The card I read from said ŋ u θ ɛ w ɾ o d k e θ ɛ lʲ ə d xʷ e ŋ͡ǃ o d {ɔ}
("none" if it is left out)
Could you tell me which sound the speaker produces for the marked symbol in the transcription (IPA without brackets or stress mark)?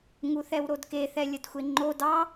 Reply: ɑ